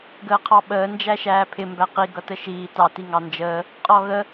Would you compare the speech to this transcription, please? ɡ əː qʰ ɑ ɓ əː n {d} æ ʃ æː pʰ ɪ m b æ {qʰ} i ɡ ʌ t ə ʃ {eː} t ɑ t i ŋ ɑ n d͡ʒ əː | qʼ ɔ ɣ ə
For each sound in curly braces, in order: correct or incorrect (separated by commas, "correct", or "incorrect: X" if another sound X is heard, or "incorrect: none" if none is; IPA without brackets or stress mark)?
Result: incorrect: d͡ʒ, incorrect: q, incorrect: iː